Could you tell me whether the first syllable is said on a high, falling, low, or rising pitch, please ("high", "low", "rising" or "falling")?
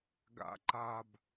low